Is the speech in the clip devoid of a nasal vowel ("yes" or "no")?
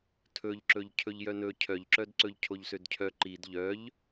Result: yes